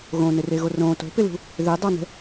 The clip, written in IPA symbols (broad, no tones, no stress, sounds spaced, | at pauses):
ɣ õ n ɪ r e ɣ o r õ t o̤ p ɪ l ṳ | ð e dˤ a n ɛ̤